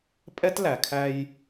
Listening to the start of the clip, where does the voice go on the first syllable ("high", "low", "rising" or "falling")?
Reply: high